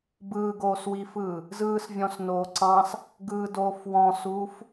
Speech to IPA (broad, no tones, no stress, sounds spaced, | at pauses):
b ɯː ɡ oː s w i f ɯː | z ɯː s vʲ ɔ̃ s n oː ǀ ɑ̃ s | ɡ ɯː d oː f w ɔ̃ s uː f